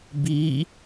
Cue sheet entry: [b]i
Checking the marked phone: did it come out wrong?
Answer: no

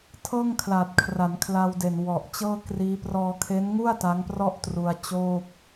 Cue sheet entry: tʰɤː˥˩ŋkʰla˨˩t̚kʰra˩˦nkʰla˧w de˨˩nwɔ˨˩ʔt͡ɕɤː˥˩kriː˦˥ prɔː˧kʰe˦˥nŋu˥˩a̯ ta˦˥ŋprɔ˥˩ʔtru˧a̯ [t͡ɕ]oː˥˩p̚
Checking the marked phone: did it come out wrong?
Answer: no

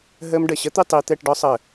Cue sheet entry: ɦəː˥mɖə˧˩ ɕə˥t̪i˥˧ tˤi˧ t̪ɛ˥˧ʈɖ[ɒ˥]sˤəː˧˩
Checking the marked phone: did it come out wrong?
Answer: no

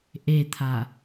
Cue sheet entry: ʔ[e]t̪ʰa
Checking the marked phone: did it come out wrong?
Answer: no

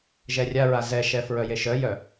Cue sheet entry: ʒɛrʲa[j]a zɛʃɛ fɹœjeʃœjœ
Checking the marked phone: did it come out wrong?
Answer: yes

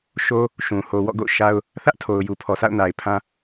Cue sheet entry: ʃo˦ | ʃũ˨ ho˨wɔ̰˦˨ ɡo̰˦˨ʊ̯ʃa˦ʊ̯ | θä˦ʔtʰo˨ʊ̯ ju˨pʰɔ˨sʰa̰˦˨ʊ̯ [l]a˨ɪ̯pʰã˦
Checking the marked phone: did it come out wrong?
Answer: yes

